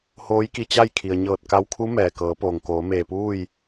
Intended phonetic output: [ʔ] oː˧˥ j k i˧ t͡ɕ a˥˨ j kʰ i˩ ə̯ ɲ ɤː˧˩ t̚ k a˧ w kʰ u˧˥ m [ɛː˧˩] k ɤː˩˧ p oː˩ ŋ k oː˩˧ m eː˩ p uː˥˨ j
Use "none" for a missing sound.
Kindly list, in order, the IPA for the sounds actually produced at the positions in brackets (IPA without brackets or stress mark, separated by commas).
h, ɛː˩